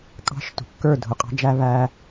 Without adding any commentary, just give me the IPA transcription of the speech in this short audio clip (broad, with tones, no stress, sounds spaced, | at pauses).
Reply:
kʼ ɑ̤˦ ʃ t ṳ˨ kː ə˞˦˨ dʱ ʊ˨ qʼ ɑ̤˦ d͡ʒ æ˦ β æ˦